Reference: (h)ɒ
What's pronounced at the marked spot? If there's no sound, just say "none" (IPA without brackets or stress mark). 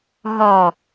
ɦ